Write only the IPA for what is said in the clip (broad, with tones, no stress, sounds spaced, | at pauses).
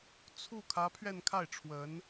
t͡sʰ u˥˩ kʰ ä˧˥ pʰ ɥ ɛ˥˧ n kʰ a˥˩ ɪ̯ ʈ͡ʂʰ w ə˧˥ n